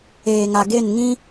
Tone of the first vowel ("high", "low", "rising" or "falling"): low